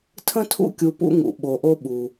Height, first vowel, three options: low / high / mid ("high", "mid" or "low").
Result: mid